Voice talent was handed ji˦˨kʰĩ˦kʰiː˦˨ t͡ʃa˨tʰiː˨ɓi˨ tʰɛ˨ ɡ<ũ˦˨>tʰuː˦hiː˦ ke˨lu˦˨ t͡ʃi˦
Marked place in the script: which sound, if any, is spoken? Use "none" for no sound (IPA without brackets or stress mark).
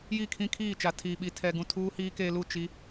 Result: ũ˦˨